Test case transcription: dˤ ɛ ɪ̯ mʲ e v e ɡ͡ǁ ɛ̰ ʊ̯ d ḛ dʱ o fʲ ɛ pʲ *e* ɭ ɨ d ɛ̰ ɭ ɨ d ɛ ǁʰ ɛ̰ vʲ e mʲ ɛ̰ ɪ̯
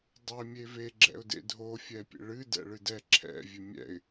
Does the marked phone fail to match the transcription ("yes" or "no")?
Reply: yes